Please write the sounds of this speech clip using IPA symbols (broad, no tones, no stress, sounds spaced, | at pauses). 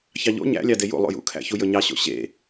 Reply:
ç ɑ ʎ o̰ ɲ æ̰ lʲ ɑ d e j ṵ lˠ ṵ j ṵ kʰ æ̰ ç u j ɵ ɲ ɑ ɕ o̰ ɕ ḛ